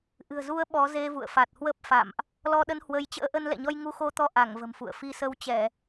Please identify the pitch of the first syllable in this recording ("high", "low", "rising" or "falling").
low